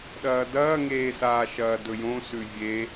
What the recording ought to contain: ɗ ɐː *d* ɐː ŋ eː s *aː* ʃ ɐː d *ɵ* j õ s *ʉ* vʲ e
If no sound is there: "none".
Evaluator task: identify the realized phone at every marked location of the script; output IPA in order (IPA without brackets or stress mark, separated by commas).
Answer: d, aː, ɵ, ʉ